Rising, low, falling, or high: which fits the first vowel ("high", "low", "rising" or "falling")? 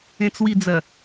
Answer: low